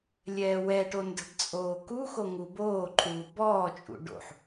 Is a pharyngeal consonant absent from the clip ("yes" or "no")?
no